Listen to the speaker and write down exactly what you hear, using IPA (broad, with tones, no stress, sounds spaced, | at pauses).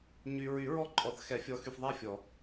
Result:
ɲ y˨ ɹ y˨˩˦ ɹ ɔ˦˨ ǃʼ ɔ˨˩˦ θ x ɛ˨˩˦ fʲ ɔ˨˦ x y˨ f ðˤ æ˦˨ fʲ ɔ˨˩˦